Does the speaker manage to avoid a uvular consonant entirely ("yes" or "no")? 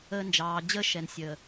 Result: yes